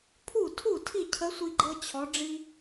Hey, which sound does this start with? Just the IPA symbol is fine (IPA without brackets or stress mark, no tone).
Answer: pʰ